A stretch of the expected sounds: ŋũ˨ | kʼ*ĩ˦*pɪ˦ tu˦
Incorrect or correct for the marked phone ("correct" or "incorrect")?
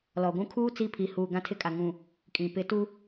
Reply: incorrect